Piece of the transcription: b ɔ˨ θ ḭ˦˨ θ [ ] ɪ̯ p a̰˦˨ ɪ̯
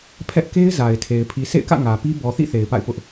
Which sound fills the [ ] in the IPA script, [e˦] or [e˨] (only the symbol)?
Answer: e˨